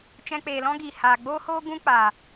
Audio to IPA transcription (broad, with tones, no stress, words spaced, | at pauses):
t͡ʃɛ̃˧k͡peː˨lɔ̃˦ɡiː˨ haː˨ ɡ͡boː˦hoː˦ ɡũ˦k͡pa˨